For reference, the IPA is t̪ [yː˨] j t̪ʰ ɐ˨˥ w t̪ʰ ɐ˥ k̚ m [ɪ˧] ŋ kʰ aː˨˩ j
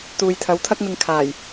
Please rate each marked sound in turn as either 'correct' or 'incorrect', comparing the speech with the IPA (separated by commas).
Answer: incorrect, correct